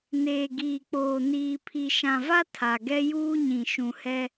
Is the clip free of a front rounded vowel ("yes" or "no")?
yes